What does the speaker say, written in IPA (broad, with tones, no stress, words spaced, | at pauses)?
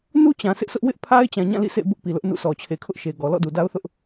nu˦t͡ɕã˨ sʰɪ˦ʔsʊ˦ʔ wɪ˦ʔpʰa˦ɪ̯t͡ɕã˨ɲã˦˨ lḭ˦˨sʰḛ˦˨bʊ˦ʔ pi˨lʊ˦ʔnṵ˦˨sɔ˨ t͡ɕʰe˨kʰʊ˦ʔʃe˨ɡɔ˨ lɔ̰˦˨du˨da˦ʊ̯θʊ˦ʔ